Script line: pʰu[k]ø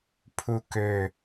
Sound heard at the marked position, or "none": k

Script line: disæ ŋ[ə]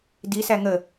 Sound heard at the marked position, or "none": ə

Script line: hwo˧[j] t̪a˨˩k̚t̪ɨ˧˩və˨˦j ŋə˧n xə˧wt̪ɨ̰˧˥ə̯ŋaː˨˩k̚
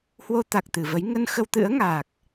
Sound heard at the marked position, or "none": none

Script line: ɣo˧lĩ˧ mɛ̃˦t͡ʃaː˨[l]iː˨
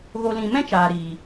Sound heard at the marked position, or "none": ɾ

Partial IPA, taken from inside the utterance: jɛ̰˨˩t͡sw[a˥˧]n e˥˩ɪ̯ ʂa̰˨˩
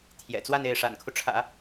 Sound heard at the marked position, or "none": a˥˧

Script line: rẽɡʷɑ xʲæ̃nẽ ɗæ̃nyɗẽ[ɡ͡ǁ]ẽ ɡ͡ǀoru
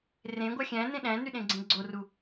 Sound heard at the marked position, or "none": ɡ͡ǀ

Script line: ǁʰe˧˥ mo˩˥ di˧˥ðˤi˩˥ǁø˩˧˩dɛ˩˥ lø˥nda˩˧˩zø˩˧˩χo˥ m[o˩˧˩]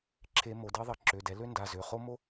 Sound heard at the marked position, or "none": o˥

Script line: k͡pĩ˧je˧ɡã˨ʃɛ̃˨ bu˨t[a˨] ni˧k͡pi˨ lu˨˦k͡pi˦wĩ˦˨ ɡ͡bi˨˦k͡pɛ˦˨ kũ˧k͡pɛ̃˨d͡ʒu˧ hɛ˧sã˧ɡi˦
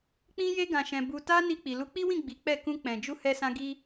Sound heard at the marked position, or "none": a˧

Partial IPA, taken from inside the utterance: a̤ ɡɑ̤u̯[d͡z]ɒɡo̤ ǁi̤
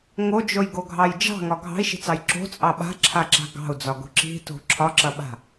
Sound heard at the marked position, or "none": d͡z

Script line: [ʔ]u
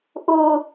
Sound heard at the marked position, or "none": ʔ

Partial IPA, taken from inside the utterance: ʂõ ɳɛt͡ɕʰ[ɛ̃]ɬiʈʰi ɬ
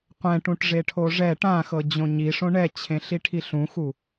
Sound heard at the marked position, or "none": ẽ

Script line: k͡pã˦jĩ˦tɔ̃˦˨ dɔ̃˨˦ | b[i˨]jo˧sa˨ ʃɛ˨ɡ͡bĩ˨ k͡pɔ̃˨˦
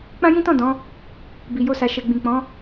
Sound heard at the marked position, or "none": i˨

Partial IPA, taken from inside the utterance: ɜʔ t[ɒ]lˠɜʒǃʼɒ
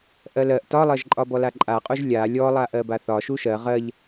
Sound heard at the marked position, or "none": ɒ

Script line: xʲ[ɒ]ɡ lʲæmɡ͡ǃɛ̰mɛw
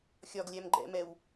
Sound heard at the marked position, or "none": ɒ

